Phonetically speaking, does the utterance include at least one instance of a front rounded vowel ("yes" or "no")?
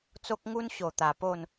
no